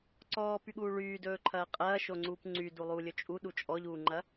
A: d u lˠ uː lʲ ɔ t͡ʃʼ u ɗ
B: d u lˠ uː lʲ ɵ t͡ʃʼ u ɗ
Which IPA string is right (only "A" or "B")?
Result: B